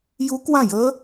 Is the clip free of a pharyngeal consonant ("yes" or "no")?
yes